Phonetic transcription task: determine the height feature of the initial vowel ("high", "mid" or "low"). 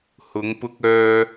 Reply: high